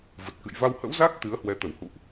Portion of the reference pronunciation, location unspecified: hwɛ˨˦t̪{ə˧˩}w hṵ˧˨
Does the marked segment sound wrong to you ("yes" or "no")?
no